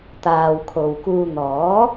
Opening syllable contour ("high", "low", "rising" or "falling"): low